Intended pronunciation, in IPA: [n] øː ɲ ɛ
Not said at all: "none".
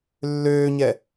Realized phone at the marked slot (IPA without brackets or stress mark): lː